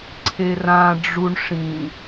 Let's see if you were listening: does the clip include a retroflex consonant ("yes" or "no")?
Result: yes